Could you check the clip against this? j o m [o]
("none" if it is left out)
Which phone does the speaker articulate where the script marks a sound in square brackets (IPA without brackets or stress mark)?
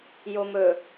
ɵ